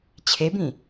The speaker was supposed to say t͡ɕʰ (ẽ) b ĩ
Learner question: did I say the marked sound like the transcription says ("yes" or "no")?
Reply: no